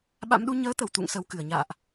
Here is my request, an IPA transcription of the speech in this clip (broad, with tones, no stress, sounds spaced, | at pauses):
ɓ a̰˧˥ m ɗ u˨˦ ɲ əː˨˦ t̪ ə˧˩ w t̪ ṵ˧˨ ŋ s ə˨˩ w k ɨ˧˩ ə̯ ɲ a̰ː˧˨ ʔ